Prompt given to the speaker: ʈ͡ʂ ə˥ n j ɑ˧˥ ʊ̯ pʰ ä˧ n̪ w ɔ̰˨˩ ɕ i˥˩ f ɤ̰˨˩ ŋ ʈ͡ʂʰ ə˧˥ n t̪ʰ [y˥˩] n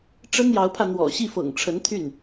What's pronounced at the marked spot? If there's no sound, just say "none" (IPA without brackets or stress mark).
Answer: y˥˩